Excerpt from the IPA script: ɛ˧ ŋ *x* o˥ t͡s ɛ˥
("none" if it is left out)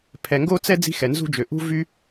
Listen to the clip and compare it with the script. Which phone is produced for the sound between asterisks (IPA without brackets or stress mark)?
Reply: ɡ